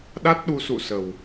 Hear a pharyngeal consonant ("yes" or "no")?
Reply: no